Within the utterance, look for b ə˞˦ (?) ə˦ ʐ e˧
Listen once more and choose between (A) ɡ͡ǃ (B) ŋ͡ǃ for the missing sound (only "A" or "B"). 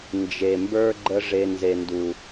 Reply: A